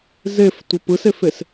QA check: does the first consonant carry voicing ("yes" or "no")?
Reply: yes